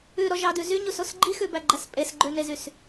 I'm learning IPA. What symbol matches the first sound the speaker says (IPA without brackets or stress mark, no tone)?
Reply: ʉ